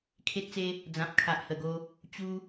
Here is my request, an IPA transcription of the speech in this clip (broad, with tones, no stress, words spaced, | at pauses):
kʰe˦t̚t͡se˦ | d͡zã˨p̚kʰa˨ʔhə˨˩ɡo˧ | t͡ɕu˦